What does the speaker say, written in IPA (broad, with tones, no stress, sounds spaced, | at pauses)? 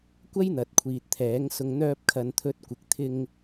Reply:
kʷ ɐ˥ j n̪ ɐ˨ t̚ kʷʰ iː˨ t̚ t̪ʰ ɛː˨˥ ŋ s ʊ˧ ŋ n̪ œː˧ p̚ kʰ ɐ˨ n t̪ʰ ɵ˨˥ t̚ kʷ ɪ˨ k̚ t̪ʰ ɪ˧ ŋ